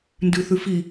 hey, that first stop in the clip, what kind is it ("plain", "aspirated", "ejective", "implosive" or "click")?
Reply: plain